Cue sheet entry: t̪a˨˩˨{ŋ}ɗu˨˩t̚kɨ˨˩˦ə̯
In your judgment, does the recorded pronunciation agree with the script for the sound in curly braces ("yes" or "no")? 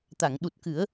yes